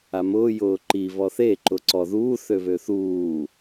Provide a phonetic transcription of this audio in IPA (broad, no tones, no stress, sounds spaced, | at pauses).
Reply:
a m ʊː j ʊː ǃ i β ɔ θ e ǃ ʊ ǀ ɔ ð uː θ ø β ø θ uː